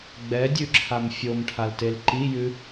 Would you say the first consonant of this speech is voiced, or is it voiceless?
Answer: voiced